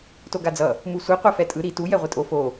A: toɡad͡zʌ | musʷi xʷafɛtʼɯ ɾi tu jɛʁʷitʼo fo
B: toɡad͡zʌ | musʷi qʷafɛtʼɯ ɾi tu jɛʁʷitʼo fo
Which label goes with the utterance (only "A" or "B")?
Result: B